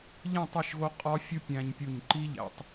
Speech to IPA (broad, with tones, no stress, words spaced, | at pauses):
ʎĩ˥˨tˤe˥˨ʃɣo˦˥ qʼɒ˦˥fʲu˦˥ pʲæ̃˧ɲpʲu˧˩ɲ ǃi˦˥ʎæ̰˨˩˦tˤ